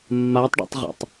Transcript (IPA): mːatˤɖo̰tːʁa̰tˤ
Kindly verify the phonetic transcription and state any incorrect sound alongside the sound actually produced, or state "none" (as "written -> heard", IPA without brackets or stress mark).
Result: tː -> tˤ